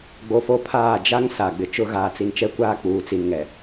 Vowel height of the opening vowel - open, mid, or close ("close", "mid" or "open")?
mid